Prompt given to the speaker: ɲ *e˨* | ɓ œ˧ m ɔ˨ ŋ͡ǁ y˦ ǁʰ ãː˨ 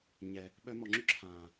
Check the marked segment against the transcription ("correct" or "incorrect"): incorrect